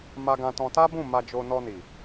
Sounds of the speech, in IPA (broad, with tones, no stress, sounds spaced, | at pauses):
m a˧ ɡ ã˧ t ɔ̃˧ t a˦ b ũ˦˨ m a˧ d͡ʒ o˧ n ɔ˧ n i˨